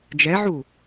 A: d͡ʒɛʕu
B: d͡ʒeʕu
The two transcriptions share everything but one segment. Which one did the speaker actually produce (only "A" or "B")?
A